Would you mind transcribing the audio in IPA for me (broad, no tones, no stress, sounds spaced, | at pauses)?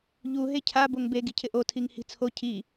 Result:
ʎ u ɦ e cʰ a b o ŋ b e ɡ i̤ cʰ ɪ ʔ o tʰ i ŋ h i̤ t͡sʰ o cʰ i